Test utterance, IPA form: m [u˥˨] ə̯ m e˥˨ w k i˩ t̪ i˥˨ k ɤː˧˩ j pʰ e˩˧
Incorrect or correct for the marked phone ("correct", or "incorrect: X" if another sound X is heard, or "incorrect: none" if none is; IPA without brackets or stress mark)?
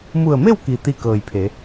incorrect: u˧˩